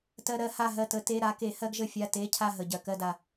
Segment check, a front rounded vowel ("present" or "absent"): absent